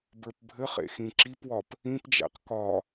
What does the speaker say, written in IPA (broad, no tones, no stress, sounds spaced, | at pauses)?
b ə˞ p bʱ ɘ χ ḛ x ĩ ǁ i p w ɒ p | ĩ p d͡ʒ æ̰ q k ɒ